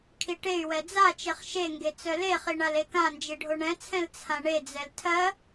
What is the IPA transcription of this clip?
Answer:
kʰ i ʈ e y̯ w ɛ d͡z a t͡ʃ e χ ʃ e ŋ ɡ e t͡s œ l e χ i ɳ a l e k ã n d͡ʒ i ɖʱ o ɳ ɛ̃ t͡sʰ ɛ̃ l t͡sʰ ã ɳ e d͡z ɛ l tʰ ɜ

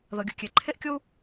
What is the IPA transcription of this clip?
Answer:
ð ɤ˩ ɡʲ u˩ kʲ e˩ ǃʰ e˥ ʔ kʲ o˥ u̯

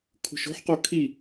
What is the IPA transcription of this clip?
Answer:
kʰ ṳ ʃ o̤ ħ q o kʰ i

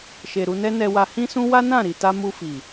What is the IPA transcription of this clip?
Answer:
ʃ e˨ ɾ u˧ n ɛ˦ n ɛ˧ w a˧ h ĩ˦ s ũ˦ w a˦ n ã˦˨ ɾ i˨ t a˧ m u˧ f i˨

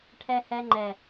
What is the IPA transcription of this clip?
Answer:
ʈʰ ɛ˧ h ɛ˧ ŋ͡ǃ ɛ˨

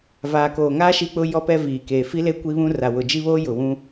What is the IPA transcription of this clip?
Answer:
v aː˨ k oː˨ ŋ aː˦ ʃ i˦ k͡p ʊ˦ j ɔ˦ p ɛ˦ v iː˨ k eː˨ f i˦ l e˦ kʷ i˦ β ũ˦ r a˨ w ʊ˨ d͡ʒ i˦ β oː˦ j ʊ˨ w ũ˦

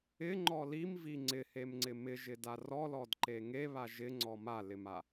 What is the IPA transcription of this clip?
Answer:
ɪ ŋ͡ǃ ɔ l i m v i ŋ͡ǀ ɪ h e m ŋ͡ǀ ɪ m ɪ ʒ ɪ d a r ɔ l ɔ d ǃ e ŋ e β a ʒ ɪ ŋ͡ǀ ɔ m a l ɪ m a

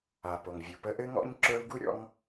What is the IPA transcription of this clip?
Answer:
a˩ p o˩ ŋ vʲ u˩ p ə˦ ʔ ɘ˥ ŋ ɔ̰˥ ɲ ǁ ə˞˦ u̯ ɡ u˥ ɾʲ ɔ̰˦ ŋ

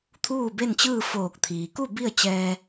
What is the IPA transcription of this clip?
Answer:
t̪ʰ uː˥˨ b e˥˨ n t͡ɕ ɯː˥˨ f oː˧˩ k̚ t̪ʰ iː˩ k u˥˨ b i˥˨ ə̯ t͡ɕ ɛː˧

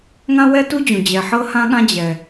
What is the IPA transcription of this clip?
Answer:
ŋ ã˥ w ɛ˥ t u˥ d͡ʑ ũ˩ d͡ʑ ɛ˩ ħ ɤ˥ h ã˥ ɠ ã˥ d͡ʑ ɛ˩

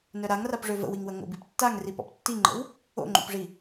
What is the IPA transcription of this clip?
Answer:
n œ ɾ a ŋ r a p ʐ ø v ə̰ w i ŋ w ə ŋ o̰ b i p tː a ŋ r i p ɔ̰ p tː i ŋ͡ǃ ə̰ w | o̰ ŋ͡ǃ o̰ p ʐ i

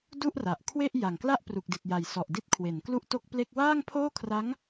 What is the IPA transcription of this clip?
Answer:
d u˥˩ ʔ r a˨˩ ʔ kʰ w e˥˩ ʔ j a˨˩ ŋ k l a˥˩ ʔ p r u˨˩ k̚ d i˨˩ t̚ j a˨˩ j s ɔ˨˩ ʔ d i˦˥ t̚ kʰ w e˩˦ n k l u˥˩ ʔ t o˥˩ k̚ p l e˥˩ k̚ w aː˥˩ ŋ pʰ oː˥˩ kʰ r a˦˥ ŋ

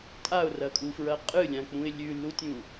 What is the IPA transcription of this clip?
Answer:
tʼ a ʊ̯ r ɐ kʼ u f ɹ ɐ qʼ ɨ lʲ ã k͡p ũ ɪ̯ lʲ ʉ lː u tʲ ũ

